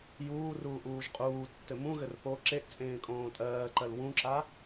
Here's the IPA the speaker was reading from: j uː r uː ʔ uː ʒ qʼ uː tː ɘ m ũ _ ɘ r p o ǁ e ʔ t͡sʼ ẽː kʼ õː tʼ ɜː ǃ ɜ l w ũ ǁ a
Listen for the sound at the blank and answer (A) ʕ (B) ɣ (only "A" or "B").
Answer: B